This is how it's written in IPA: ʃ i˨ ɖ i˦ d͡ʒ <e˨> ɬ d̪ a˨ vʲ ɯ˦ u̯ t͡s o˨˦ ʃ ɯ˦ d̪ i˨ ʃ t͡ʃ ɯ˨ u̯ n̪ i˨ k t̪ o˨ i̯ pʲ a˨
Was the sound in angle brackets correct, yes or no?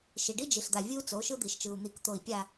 no